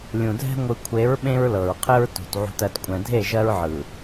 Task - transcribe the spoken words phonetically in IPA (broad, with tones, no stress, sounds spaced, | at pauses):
lʲ ũ˨ dʱ ɛ̤˦ ŋʷ ɯ˨ kʷʰ e˨˦ ɹ ɓ ẽ˦ ɹ l ɤ˨ ɹ qʰ ɘ˦ ɹ t ṳ˨ t ʕ ṳ˨ t ɜ˨ t kʷʼ ɛ̃˨ dʱ e˦˨ ʒ ɜ˦ ɹ ʕ ɯ˨